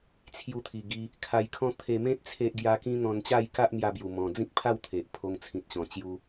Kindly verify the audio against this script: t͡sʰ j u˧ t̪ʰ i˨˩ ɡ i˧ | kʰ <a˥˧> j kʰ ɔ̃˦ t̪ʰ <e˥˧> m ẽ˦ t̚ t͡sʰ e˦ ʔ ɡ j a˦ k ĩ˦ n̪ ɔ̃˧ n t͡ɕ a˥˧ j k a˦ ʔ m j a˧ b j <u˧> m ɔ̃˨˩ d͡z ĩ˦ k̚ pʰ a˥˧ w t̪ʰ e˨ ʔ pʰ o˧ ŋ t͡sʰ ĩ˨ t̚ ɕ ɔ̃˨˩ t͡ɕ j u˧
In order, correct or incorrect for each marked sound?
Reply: incorrect, incorrect, incorrect

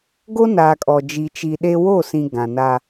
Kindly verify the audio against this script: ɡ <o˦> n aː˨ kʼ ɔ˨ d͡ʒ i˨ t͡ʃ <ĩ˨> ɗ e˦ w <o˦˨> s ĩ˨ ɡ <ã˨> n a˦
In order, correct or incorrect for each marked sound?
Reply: correct, incorrect, correct, correct

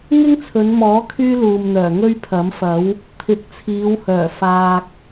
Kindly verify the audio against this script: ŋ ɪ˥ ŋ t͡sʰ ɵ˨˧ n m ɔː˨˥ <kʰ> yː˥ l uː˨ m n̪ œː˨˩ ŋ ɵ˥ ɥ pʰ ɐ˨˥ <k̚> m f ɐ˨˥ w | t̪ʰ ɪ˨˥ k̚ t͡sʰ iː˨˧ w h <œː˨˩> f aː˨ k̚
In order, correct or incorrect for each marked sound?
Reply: correct, incorrect, correct

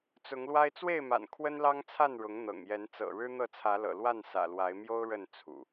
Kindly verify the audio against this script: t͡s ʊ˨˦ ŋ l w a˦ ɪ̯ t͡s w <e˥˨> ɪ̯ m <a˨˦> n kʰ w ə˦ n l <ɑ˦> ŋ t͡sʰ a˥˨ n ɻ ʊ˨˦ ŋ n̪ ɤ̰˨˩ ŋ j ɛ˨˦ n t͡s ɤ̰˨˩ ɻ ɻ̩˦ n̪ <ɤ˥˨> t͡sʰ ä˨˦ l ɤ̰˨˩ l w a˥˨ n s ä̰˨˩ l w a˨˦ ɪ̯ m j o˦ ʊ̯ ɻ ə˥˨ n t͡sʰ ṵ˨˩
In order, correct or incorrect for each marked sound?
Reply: correct, incorrect, correct, correct

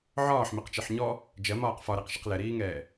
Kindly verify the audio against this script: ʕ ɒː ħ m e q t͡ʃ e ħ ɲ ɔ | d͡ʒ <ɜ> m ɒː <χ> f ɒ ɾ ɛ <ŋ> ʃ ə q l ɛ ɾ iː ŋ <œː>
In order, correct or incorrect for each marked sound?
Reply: correct, incorrect, incorrect, incorrect

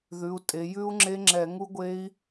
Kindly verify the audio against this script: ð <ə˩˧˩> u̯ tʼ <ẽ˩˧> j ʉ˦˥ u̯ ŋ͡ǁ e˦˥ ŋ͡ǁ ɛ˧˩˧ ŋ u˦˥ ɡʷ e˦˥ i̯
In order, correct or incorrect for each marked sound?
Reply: incorrect, incorrect

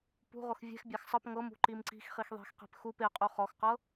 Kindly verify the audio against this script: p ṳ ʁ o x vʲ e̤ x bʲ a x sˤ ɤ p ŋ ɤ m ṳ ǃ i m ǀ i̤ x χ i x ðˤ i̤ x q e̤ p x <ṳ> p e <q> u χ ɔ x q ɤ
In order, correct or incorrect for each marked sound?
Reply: incorrect, incorrect

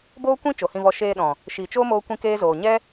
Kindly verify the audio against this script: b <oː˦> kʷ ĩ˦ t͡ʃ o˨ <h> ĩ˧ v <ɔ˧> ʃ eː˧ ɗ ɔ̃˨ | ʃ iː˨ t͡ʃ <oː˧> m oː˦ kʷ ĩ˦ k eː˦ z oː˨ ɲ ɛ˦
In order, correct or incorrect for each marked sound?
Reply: correct, correct, correct, incorrect

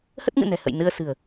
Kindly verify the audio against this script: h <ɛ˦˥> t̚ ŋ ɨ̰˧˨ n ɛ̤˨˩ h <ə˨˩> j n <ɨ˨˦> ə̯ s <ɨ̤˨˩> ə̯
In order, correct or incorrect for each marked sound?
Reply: incorrect, incorrect, incorrect, correct

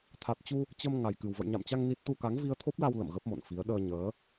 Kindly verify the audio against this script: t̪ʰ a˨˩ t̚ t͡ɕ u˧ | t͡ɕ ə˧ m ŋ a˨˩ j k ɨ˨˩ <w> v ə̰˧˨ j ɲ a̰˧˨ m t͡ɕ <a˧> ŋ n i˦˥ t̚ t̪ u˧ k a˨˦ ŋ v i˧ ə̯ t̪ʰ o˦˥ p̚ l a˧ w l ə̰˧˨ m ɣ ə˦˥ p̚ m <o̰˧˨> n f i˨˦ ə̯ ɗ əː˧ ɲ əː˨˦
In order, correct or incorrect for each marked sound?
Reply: correct, correct, correct

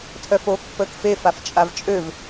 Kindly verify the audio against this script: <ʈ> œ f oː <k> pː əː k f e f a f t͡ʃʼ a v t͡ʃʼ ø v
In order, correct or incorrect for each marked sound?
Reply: incorrect, correct

